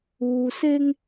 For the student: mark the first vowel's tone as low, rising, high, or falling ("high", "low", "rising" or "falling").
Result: low